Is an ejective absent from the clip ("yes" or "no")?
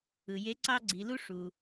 yes